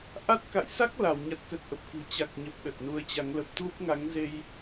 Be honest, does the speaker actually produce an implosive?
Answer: yes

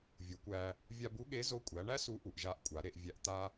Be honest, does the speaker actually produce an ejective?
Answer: yes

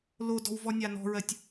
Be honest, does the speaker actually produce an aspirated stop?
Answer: no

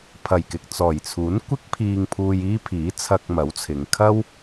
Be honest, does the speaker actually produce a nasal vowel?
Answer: no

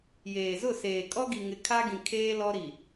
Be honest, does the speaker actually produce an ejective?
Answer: yes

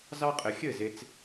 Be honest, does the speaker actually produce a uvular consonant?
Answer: yes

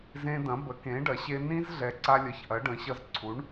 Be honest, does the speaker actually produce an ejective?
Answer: no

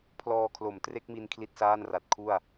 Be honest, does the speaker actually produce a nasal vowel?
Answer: no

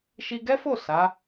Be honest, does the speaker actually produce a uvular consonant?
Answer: no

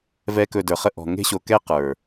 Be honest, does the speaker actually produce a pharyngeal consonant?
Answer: no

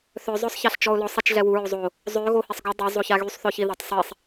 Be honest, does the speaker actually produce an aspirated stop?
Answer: no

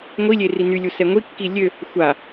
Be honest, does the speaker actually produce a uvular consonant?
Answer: no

